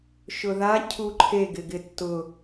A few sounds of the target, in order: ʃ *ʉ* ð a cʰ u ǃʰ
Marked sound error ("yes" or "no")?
yes